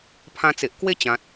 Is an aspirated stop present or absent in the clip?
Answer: present